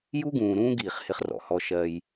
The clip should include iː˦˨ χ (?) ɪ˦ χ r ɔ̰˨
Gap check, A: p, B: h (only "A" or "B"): B